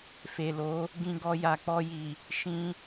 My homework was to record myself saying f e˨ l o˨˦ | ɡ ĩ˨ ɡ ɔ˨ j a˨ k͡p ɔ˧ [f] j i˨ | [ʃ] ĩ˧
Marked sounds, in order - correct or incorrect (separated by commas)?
incorrect, correct